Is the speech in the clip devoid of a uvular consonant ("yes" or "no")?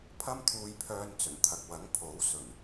yes